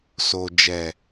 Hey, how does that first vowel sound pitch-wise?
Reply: low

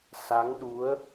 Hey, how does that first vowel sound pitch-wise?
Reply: rising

